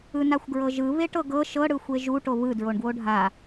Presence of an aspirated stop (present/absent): absent